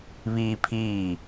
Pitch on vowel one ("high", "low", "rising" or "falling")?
high